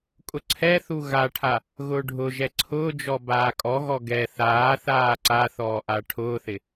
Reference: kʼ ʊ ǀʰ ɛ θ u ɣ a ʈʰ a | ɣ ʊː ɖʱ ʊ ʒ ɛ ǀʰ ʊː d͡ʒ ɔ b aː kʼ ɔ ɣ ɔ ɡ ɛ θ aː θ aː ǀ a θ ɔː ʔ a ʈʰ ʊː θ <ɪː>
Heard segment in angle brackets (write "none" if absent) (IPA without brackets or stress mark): ɪ